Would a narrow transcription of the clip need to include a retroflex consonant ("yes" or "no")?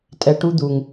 yes